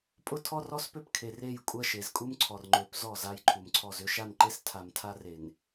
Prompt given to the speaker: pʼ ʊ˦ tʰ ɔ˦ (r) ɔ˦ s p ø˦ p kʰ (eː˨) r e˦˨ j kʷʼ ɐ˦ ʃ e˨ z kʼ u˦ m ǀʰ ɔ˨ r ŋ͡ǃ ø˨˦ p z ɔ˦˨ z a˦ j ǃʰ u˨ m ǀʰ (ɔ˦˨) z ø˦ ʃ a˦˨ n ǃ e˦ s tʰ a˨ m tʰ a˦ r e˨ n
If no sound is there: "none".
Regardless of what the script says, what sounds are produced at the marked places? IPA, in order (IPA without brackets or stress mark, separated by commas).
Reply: r, e˨, ɔ˦˨